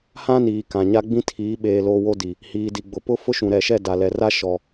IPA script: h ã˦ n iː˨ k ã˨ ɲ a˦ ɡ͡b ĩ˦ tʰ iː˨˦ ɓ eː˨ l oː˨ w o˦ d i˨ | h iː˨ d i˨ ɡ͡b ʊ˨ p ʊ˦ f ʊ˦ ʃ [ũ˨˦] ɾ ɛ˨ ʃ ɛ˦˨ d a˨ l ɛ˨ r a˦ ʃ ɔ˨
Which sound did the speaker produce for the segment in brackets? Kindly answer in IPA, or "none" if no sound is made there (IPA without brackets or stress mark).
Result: ũ˨